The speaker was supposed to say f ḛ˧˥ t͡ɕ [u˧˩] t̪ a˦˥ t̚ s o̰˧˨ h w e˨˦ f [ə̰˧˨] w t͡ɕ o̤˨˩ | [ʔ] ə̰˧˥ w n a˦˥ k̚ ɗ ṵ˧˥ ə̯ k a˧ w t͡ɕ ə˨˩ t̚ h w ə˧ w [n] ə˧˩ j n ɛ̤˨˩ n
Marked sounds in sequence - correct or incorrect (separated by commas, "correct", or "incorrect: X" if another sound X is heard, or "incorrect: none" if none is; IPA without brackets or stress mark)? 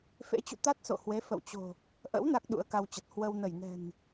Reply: incorrect: ṵ˧˨, correct, correct, correct